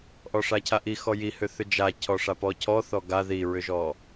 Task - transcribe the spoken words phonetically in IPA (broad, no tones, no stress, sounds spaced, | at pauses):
ʔ ɔ ʂ a cʰ a ʔ i x ɔ j i h ʏ θ ʏ d͡ʒ a cʰ ɔ ʂ a p ɔ cʰ ɔ θ ɔ ɡ a ð i ɹ ʏ ʒ ɔ